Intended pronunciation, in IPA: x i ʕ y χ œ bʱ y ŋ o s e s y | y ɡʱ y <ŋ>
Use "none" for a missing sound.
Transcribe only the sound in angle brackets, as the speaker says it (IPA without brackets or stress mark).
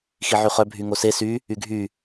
none